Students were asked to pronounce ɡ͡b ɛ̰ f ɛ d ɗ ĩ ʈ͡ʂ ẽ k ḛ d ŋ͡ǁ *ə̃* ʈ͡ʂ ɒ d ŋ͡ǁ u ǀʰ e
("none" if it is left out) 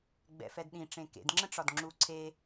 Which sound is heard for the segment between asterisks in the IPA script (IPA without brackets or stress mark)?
ə̃